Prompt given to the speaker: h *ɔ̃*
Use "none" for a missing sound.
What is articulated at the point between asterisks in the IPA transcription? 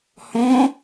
ɔ̃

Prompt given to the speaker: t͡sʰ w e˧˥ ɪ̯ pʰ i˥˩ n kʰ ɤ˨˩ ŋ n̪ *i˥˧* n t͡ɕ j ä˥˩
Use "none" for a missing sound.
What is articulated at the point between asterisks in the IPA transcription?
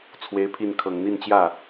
i˥˧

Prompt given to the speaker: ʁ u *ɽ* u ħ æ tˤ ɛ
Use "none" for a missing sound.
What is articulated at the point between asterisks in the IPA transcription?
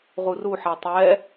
r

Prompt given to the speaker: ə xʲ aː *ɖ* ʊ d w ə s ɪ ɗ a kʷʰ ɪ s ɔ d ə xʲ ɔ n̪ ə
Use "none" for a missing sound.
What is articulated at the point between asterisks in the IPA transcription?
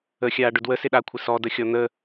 ɖ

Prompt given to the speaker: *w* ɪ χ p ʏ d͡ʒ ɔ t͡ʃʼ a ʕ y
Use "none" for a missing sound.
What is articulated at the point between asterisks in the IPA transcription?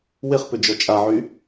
w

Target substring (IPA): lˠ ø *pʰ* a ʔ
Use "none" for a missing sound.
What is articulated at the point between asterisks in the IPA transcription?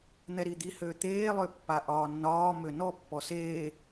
pː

